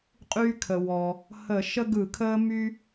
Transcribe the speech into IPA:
qʼ yː˦ kʰ ə˩ w ɔ˩ | h ə˧˩˧ ʃ ə˦ ɡ ɯ˧˩˧ kʰ əː˦ m y˦

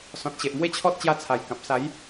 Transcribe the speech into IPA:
s ɔ̃˨ t̚ ɕ e˨ ʔ m w e˦ t͡ɕʰ ɔ˦ t̚ t͡ɕ j a˧ t͡sʰ a˨˩ j k ã˨ p̚ s a˨˦ j

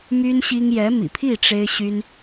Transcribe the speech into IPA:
m y˥ n ɕ i˥ ŋ j ɛ˧˥ m ḭ˨˩ pʰ i˥˩ ʈ͡ʂ e˥ ɪ̯ ɕ y˥ n

